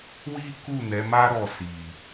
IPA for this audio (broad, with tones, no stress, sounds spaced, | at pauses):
w i˦ k u˦˨ n ɛ˨˦ m a˦ ɾ ɔ˦˨ s i˨